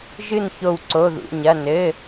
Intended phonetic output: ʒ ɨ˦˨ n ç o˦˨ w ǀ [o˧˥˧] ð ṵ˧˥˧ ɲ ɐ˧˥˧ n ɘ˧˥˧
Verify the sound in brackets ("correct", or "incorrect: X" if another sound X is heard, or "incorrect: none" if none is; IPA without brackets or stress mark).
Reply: correct